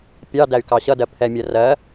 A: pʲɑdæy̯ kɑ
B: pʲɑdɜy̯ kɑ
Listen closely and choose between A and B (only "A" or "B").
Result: A